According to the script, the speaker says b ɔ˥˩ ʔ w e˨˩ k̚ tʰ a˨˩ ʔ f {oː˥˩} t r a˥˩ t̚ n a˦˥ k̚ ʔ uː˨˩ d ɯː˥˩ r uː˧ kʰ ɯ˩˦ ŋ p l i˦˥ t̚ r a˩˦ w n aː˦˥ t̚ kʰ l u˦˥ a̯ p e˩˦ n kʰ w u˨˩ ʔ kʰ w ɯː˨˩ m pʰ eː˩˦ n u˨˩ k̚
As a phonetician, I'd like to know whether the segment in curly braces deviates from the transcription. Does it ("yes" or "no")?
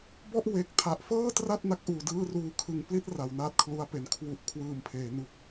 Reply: yes